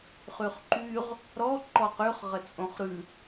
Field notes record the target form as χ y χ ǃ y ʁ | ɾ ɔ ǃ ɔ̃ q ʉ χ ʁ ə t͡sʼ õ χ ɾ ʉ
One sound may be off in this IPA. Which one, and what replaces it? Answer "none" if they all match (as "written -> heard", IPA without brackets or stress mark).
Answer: ɔ̃ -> ɔ